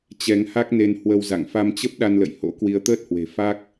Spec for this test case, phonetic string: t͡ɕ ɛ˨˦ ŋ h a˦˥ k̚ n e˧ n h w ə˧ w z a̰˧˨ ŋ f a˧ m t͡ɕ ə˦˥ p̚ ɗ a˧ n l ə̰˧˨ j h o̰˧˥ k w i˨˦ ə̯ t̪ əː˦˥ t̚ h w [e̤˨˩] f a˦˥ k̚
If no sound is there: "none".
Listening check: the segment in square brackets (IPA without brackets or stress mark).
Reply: e̤˨˩